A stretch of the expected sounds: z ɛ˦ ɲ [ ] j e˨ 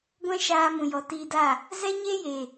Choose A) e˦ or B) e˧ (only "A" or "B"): A